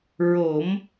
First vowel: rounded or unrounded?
rounded